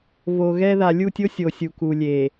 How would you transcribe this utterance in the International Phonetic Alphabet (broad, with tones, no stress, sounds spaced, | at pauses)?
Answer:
v o˨ ɣ ɛ˦ ð a˨ lʲ u˦˨ tʲ o˦ sʲ o˨ sʲ u˨ k u˨ lʲ e˨